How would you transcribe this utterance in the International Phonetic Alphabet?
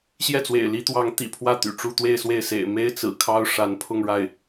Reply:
ɕ j ɛ˥˩ t͡s w ḛ˨˩ ɪ̯ l i˧˥ t̪ w ɑ˧˥ ŋ t̪ ḭ˨˩ pʰ w ä˥˩ t̪ y̰˨˩ ʈ͡ʂ u˥˧ t̪ w e˥˧ ɪ̯ s w e˥˩ ɪ̯ s ḛ˨˩ ɪ̯ m e˥ ɪ̯ t͡s ɹ̩˨˩ kʰ ɑ˥ ʊ̯ ʂ a˧˥ n pʰ ʊ˥˧ ŋ ɻ a˥˩ ɪ̯

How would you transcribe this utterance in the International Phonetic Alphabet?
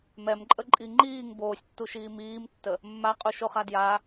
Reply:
m ɛ m ǃʼ ə ǃʼ i ŋ͡ǃ iː ŋ b oː sʲ tː u ʃ iː m iː m tː ə | mː a qʼ u ʃ o χ a d j a

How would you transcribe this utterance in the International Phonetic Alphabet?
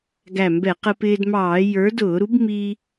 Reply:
ɡ æ˧˩ m b ɛ˧˩˧ q ə˧ p ɪː˧ d m ɑː˧˩˧ j ə˞˨˥ d ʊː˧˩˧ ɾ u˨˥ b m i˧

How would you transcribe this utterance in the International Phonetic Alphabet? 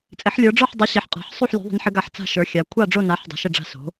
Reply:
t͡sʼ ɪ˨˥ ħ lʲ ə˞˨˥ ɖ͡ʐ ə˞˥˨ ħ dˤ o˨˥ ɕ ɪ˨˥ ħ qʼ a̤˨˥ ħ sˤ u˥˨ ħ lʲ ṳ˨˥ ðˤ ə̤˨˥ n ħ ɪ˨˥ ɡ a˨˥ ħ t͡s a̤˥˨ ʃ ə˞˨˥ xʲ a˨˥ kʷʰ a˥˨ ɖ͡ʐ o˥˨ n a˨˥ ħ dˤ a̤˨˥ ʃ ɪ˥˨ ɖ͡ʐ a̤˥˨ s o̤˨˥

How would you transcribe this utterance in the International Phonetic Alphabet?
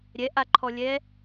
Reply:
ɾʲ ɛ ʔ a ǃʰ ɔ lʲ ɛ

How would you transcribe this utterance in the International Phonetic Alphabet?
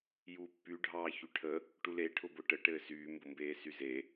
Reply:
j uː pː y ɖʱ ɑː ç y ʈʰ ə | ʈ u l e ʈʰ ʊ b ʊ ʈ ə ʈ ɘː s yː m b ʊ m b eː s y z e

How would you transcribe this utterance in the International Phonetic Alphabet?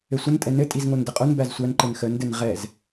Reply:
ɘ sʷ ə n tʼ ɛ n ɘ tʼ i z ŋ o n d ə qʼ o n b æ z sʷ æ n ǃ ɘ n x ə n d ɘ n ʁ ɛ z

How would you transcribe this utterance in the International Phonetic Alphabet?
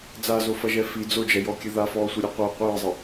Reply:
d͡z a z o f ɐ ʒ ɛ f i d͡z o d͡ʒ ɛ j ɔ kʲ ɘ ð a f ɔː sʷ e ɾʲ ɛ qʷ a qʷ ɨː zˤ ɘ

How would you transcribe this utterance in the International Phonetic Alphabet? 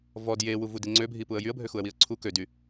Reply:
v ɔ d j e w u v u d i ŋ͡ǀ ø bʱ i p u ə̯ j y ə̯ bʱ ø x u ə̯ w i ə̯ ǀʰ u k ø d y

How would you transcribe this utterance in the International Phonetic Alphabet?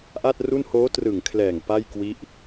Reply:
ʔ a˥˩ t̚ r u˥˩ n h oː˦˥ t r ɯ˨˩ ŋ kʰ l ɛː˨˩ ŋ p a˥˩ j k w i˦˥ ʔ

